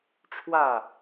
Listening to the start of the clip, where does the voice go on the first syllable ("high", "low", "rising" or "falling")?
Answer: falling